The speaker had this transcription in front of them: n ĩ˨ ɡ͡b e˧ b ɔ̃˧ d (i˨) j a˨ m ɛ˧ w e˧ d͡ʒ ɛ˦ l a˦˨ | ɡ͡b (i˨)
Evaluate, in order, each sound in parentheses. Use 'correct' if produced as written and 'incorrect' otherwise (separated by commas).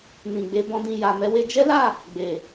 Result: incorrect, incorrect